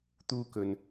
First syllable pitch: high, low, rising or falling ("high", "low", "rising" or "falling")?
high